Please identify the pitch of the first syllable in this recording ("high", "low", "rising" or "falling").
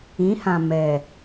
rising